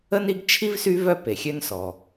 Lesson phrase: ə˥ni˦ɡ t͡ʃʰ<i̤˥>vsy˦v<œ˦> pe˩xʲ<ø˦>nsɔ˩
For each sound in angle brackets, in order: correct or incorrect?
incorrect, correct, correct

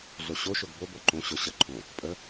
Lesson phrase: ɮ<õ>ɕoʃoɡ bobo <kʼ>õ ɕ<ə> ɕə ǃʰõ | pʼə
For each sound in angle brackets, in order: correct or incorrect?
incorrect, incorrect, incorrect

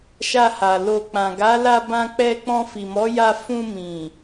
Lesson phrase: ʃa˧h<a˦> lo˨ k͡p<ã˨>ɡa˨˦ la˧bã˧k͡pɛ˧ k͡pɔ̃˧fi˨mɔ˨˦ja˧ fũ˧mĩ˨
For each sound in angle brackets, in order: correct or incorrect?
incorrect, correct

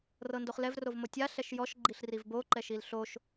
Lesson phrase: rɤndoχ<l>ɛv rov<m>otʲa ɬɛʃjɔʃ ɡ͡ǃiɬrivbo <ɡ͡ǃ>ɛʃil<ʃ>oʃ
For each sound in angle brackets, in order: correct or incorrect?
correct, correct, incorrect, incorrect

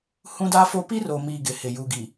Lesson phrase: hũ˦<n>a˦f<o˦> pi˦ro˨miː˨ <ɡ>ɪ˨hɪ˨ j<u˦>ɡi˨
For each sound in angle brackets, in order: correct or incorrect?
incorrect, correct, correct, incorrect

